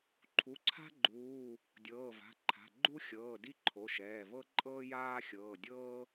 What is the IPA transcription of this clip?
ǃʰ u˩˧˩ ǀʰ a̤˥ ɡ͡ǃ uː˩˧˩ | dʲ ɤː˩˧˩ v a̤˩˧˩ ǃʰ a̤˩˧˩ ɡ͡ǃ u˥ xʲ ɤː˩˧˩ d i˥ ǃʰ o˩˧˩ ʃ ɛː˩˧˩ v ɤ˥ ǃʼ ɤː˥ j aː˥ xʲ ɤː˩˧˩ dʲ ɤː˥

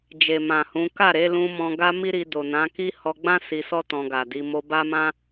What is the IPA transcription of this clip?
d͡ʒ e˨ m ã˨ h ũ˨˦ k a˦˨ ɾ e˨˦ l ũ˧ m ɔ̃˧ ɡ a˦ m i˦ ɾ i˧ d o˨ n ã˨˦ k i˦ h ɔ˧ ɡ͡b ã˦ s i˧ s ɔ˦ t ɔ̃˧ ɡ a˨ d i˨˦ m o˧ b a˦ m ã˦

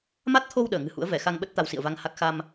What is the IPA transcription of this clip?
m a˦˥ t̚ t̪ʰ o˧ w ɗ əː˧˩ ŋ ɨ̤˨˩ h ṵ˧˥ ə̯ v ɛ˧˩ x a˧ ŋ ɓ ə˦˥ t̚ t̪ a˧ w s ḭ˧˨ ə̯ v a˧ ŋ h a˦˥ k̚ x a˧ m

